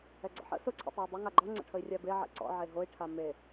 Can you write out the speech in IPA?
ɛ ɡ͡ǀ ɔ̰ ħ ə̰ s ʊ ǀʰ ɛ̰ tˤ ɛ u̯ dˤ ʊ ŋ a ɡ͡ǃ ɔ ŋ͡ǀ ə̰ ʈʰ ə i̯ rʲ a b e ʕ ḛ ǀ ɔ̰ ʕ e ɦ o i̯ ʈʰ a m e

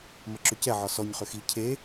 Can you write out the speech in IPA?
m ə ǁ ʏ c ɛ ʕ ɒ s ɔ ɲ χ ʏ x i cʰ e

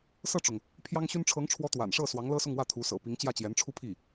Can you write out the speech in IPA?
s ɤ˥˩ ʈ͡ʂ ʊ˩ ŋ | pʰ j ɑ˥ ŋ ɕ y˥ n ʈ͡ʂʰ ɤ˧˥ ŋ ʈ͡ʂʰ w ɔ˧˥ t̪ w a̰˨˩ n ʂ ɤ˥˩ s w ɑ˧˥ ŋ l ɤ˥ s ʊ˥˧ ŋ w ä˥˩ t̪ʰ u˧˥ s ɤ̰˨˩ p i˧˥ ŋ t͡ɕ j ä˥˩ t͡ɕ j ɛ˧˥ n ʈ͡ʂʰ u˥˧ pʰ i˥˩

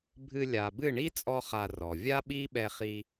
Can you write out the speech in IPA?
bʱ ɨ˧ lʲ a˨ b ɨ˦˨ ɳ i˦ t͡sʼ ɔ˧ χ a˧ r ɔ˨ vʲ a˦ ɓ i˦ ɓ ɛ˧ χ i˧

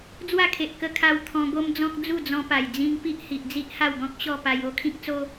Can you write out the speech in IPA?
d͡z w a˥˧ kʰ e˨ ʔ k ə˧ kʰ a˧ w t̪ʰ ɔ̃˧ ɡ o˦ m d͡z ɔ̃˦ k̚ d͡z u˥˧ d͡z ɔ̃˧ p a˨˩ j d͡z ĩ˧ ŋ p i˦ ʔ h i˨ ʔ d͡z i˦ ʔ h a˥˧ w ɡ ɔ̃˦ k̚ ɕ ɔ˥˧ p a˧ j o˦ kʰ ĩ˦ k̚ t͡s o˦

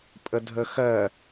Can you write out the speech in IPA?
pʼ ə dʱ ə x ɜ

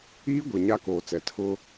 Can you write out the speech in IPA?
iː˦ ɡʷ e˨ ɲ a˦ k oː˨ t͡s ɛ˨˦ tʰ ʊ˦

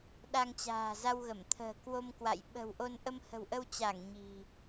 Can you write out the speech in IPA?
ɗ a˧ ŋ t͡ɕ a̤ː˨˩ z a˧ w ɣ ə˧˩ m t̪ʰ ə̤ː˨˩ k w o˧ m k w a̰˧˨ j ɓ ə̤˨˩ w ʔ o˧ n ʔ ə˧ m h ə̤˨˩ w ʔ ə˧ w t͡ɕ a˧˩ ŋ ɲ i̤˨˩

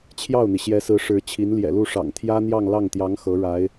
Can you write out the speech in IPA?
t͡ɕʰ j ɑ˥˩ ʊ̯ n̪ i˩ ɕ j ɛ˧˥ s ɹ̩˧˥ ʂ ɻ̩˧˥ t͡ɕʰ i˧˥ n l j ɛ̰˨˩ l u˥˩ ʂ ɑ̰˨˩ ŋ t̪ʰ j ä˥ n̪ j ɑ˥˧ ŋ l ɑ˥˩ ŋ t̪ j ɑ˧˥ ŋ x ɤ˧˥ ɻ a˧˥ ɪ̯

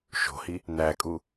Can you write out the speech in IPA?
ʃ o̤ h i | n̪ æ kʼ u

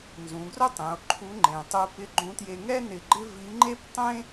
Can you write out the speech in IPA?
n z ũ˩˧ ɡ r ʊ˥ tˤ ẽ˩˧ o̯ ǃʰ u˧˥ ŋ͡ǃ ẽ˩ tˤ u˧ p ɪ˧˥ ɡ͡ǃ ũ˧˥ t j e˧ ŋ ɛ˥ n ɪ˧ ɡ͡ǃ ɪ˥ v i˧˥ ŋ͡ǃ e˥ p tˤ ẽ˥

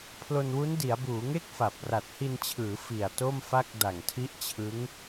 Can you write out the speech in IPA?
pʰ l o˧ n w u˦˥ n d i˩˦ a̯ b uː˩˦ ŋ e˥˩ k̚ f a˨˩ p̚ r a˨˩ t̚ h i˧ n t͡ɕʰ ɯː˩˦ f i˨˩ a̯ t o˥˩ m f a˥˩ k̚ d a˨˩ ŋ tʰ i˦˥ ʔ t͡ɕʰ ɯ˦˥ ŋ

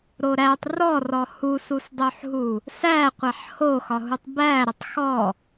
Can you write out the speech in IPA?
ɾ o ɾ æ tˤ r ɔ r ɔ h u s u s dˤ o ħ ɦ u | s æ qʷ æ ħ h o x ɒ ɦ u tˤ b æ ɾ ə tˤ x ɔ

